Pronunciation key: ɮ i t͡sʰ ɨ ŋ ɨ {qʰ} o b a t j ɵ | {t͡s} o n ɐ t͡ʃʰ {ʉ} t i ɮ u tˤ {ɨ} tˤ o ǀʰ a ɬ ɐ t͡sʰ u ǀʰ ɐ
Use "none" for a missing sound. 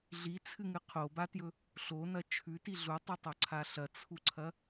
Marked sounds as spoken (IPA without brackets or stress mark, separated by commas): qʰ, ɬ, ʉ, ɨ